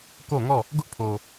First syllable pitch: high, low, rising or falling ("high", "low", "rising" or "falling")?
falling